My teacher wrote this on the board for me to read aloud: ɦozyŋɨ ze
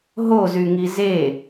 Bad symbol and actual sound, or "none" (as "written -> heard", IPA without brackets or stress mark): ɨ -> i